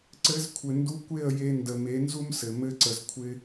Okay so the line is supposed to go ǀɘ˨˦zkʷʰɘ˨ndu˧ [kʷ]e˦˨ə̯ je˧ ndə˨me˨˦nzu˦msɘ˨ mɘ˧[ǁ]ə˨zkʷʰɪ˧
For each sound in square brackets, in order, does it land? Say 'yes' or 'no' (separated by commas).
yes, no